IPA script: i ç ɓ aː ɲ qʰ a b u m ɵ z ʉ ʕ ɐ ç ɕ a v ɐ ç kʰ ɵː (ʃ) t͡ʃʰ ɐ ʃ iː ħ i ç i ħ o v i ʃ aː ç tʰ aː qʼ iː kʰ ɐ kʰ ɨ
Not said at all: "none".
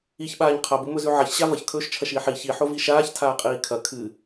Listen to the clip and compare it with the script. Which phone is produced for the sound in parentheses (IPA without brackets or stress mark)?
ʃ